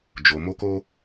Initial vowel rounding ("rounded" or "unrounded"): rounded